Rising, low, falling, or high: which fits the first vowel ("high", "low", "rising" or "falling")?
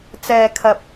low